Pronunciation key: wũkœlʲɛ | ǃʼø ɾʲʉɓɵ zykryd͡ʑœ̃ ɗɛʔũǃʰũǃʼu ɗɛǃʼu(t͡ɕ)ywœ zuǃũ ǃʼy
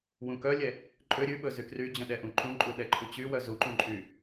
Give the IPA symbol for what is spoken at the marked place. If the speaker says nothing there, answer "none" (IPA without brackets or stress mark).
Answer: t͡ɕ